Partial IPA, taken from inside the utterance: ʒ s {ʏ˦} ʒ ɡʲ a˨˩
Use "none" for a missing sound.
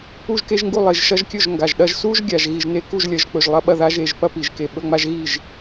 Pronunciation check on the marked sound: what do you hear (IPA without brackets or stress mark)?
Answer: u˦